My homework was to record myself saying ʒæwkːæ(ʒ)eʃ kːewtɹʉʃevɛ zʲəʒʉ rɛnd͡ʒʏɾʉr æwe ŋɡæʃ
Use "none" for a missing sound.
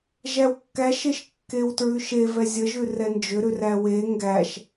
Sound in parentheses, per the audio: ʃ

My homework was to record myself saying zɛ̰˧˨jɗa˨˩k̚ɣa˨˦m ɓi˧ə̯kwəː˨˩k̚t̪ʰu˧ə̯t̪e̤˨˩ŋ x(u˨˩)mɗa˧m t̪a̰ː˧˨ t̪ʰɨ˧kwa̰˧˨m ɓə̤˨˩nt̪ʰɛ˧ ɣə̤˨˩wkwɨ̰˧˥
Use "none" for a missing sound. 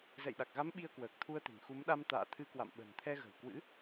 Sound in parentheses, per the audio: u˨˦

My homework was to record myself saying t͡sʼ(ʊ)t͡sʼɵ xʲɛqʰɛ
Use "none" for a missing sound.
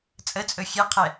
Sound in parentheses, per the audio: ə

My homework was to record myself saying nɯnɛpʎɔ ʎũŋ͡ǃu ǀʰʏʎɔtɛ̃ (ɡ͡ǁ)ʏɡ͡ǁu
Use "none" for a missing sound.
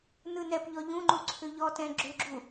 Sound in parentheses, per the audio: ɡ͡ǁ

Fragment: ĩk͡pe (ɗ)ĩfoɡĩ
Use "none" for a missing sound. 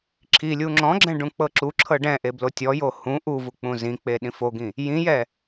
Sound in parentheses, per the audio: ɗ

